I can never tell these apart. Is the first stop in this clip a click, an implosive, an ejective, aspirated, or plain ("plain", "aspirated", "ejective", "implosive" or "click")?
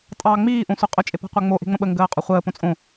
ejective